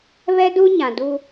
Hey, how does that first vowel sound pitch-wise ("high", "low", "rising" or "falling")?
high